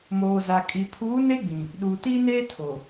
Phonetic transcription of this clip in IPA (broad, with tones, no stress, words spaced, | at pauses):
moː˨za˨ kʼi˨ pʰuː˨˦ ne˦ɡ͡bĩ˨ | ɗuː˨tiː˦neː˦ tʰo˨